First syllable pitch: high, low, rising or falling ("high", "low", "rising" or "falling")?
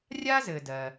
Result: high